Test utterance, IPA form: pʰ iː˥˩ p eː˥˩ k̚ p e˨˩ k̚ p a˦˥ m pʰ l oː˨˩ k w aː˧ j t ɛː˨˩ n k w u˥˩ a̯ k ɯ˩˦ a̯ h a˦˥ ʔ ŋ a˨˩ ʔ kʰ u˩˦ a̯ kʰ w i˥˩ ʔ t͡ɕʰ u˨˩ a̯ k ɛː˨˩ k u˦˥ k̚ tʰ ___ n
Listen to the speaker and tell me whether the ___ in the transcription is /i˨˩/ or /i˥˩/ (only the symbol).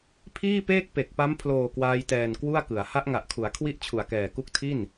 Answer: i˥˩